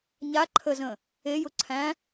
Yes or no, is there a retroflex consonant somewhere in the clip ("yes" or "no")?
no